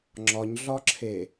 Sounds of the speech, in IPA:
ŋ͡ǁɒɲɮɒǁʰe

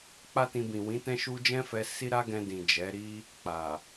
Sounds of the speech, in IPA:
k͡pa˦tĩ˧bĩ˨ wĩ˨˦tɛ̃˦ʃu˦ d͡ʒɛ̃˦fɛ˧ si˦ ɾa˦ɡɛ̃˧ dĩ˨d͡ʒɛ˨˦ɾi˦ | k͡pa˨

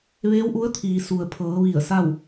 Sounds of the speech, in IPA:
ʋeː˧˥wʔu˧˥ə̯t̪ʰiː˩ su˩ə̯pʰɤː˩˧ ʋi˧˩ə̯sa˥˨w

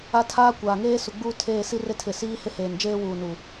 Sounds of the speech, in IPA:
a˦tʰaː˦kʷaː˨ŋeː˦ su˨ɡ͡buː˦ tʰeː˦˨ si˦re˦tʰɪ˨siː˦ hɪ˦heː˨nd͡ʒeː˦ wuː˨ nuː˨

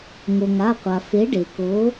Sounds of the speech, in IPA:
ŋo˩ŋa˩˧˩qʷa˩ fe˨˥ɖe˩ko˨˥

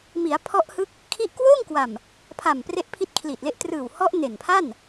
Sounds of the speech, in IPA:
mi˩˦a̯pʰɔ˦˥ʔhɯ˦˥k̚ | kʰi˦˥ʔ kwoː˥˩ŋkwa˨˩m | pʰa˨˩m pre˦˥ʔpʰi˦˥t̚kʰli˨˩t̚le˦˥ʔ trɯː˨˩whɔ˦˥ʔ ne˨˩npʰa˥˩n

